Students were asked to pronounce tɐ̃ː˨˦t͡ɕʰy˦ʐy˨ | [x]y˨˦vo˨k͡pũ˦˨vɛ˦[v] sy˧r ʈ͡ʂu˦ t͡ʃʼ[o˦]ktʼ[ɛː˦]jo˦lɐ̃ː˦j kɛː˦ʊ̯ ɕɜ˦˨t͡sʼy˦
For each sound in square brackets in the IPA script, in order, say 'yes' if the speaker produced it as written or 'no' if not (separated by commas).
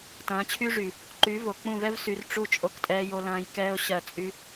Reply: no, yes, yes, yes